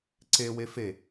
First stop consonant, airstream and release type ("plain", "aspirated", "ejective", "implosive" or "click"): click